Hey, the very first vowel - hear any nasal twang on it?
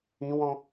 yes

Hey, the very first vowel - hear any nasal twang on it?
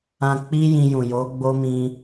yes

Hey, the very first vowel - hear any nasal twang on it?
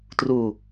no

